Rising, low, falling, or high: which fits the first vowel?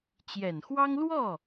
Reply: low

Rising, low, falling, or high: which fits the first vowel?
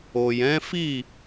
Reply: low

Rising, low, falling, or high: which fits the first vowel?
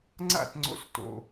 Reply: falling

